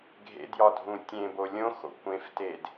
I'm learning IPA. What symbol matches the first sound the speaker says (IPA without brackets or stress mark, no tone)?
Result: ɡʱ